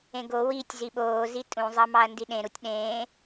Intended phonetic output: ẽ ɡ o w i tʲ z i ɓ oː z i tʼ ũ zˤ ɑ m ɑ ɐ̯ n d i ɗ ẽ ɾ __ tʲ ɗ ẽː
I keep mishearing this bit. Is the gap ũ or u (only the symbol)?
u